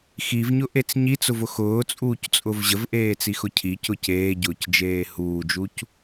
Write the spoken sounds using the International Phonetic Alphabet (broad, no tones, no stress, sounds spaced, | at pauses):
x i v ɲ ʊ ʔ e t͡s ɲ i t͡s ʊ v ʊ x ʊː t͡sʼ uː c t͡sʼ ʊ v ʑ ə v ʔ eː t͡s i x ʊ cʰ i c ʊ c eː ɟ ʊː c d͡ʒ eː h uː d͡ʒ u c